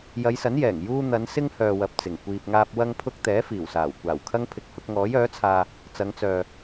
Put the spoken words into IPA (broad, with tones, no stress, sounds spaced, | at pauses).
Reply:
j ɐ˨˧ j s ɐ˨˥ n j ɛː˨˩ ŋ j uː˧ n̪ ɐ˨˧ n s ɪ˥ ŋ h œː˨ w ɐ˨ p̚ t͡s ɪ˨˩ ŋ kʷ iː˨ p̚ ŋ aː˧ p̚ w ɐ˥ ŋ pʰ ʊ˥ k̚ t̪ ɛː˨˥ f iː˨˩ w s aː˨˩ w kʷ aː˨˩ w kʰ ɐ˥ ŋ pʰ ɪ˧ k̚ h ʊ˨˥ k̚ ŋ ɔː˨˥ j œː˨˥ t͡sʰ aː˧ | t͡s ɐ˨˧ ŋ t͡s œː˨